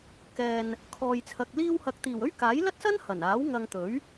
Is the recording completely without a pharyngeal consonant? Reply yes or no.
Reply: yes